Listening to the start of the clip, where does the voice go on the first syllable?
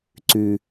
low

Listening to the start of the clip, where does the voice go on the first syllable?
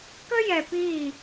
high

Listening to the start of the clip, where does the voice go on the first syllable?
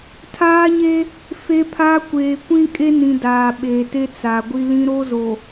high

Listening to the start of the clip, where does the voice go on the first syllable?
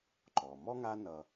low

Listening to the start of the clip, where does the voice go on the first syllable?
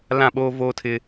falling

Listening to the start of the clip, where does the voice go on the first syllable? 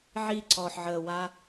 falling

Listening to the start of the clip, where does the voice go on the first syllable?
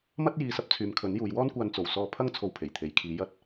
high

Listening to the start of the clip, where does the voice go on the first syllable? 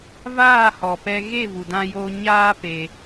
falling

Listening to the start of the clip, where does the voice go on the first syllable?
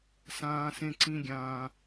high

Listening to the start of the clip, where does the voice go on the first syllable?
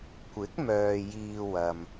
rising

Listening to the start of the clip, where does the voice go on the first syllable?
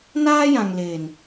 high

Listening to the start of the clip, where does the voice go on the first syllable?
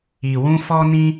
low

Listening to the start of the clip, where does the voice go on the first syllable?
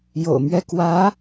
low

